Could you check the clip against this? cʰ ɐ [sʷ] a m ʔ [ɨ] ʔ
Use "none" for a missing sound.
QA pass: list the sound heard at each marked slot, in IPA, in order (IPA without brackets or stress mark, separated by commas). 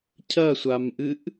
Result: sʷ, ɨ